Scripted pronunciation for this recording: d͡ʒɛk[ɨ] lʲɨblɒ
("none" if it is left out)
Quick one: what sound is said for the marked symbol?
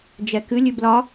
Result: ɨ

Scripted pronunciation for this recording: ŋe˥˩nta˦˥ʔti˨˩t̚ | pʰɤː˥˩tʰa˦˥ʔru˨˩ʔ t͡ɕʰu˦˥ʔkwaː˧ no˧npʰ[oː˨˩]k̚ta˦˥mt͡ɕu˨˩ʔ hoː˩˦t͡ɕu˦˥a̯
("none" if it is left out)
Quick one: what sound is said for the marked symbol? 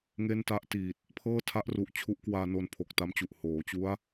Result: o˨˩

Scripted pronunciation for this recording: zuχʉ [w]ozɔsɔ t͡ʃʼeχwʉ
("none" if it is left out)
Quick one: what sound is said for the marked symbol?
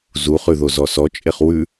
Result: ð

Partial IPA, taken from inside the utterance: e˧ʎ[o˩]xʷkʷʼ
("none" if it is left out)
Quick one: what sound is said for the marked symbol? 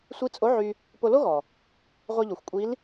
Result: o˩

